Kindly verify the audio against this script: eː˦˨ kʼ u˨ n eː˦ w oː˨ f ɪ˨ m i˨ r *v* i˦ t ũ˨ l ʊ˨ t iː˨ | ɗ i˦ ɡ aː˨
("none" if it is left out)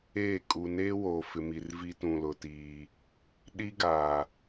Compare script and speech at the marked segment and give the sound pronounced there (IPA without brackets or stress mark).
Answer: v